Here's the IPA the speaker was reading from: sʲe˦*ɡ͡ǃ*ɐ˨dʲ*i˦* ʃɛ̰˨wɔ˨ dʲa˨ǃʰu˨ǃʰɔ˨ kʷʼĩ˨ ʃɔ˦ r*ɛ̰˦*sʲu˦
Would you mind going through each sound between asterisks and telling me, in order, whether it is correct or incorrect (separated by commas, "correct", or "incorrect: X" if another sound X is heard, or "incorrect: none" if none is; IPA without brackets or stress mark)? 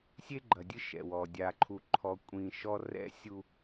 correct, incorrect: ɨ˦, correct